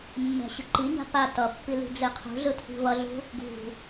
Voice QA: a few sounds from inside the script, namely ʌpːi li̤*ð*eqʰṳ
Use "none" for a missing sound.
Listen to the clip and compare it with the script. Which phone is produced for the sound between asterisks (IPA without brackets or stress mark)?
d͡z